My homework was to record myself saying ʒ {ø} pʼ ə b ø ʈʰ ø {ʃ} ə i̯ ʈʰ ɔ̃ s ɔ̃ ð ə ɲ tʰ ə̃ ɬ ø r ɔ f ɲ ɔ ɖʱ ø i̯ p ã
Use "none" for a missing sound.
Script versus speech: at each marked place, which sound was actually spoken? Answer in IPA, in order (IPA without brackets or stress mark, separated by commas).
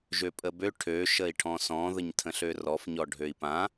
ø, ʃ